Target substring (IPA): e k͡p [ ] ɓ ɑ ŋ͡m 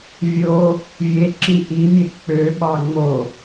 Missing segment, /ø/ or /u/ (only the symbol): ø